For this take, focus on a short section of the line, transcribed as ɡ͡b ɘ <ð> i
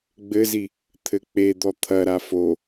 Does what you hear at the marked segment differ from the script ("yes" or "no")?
yes